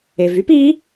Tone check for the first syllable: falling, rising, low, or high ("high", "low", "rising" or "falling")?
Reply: low